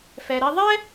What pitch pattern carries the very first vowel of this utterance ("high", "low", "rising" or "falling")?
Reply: low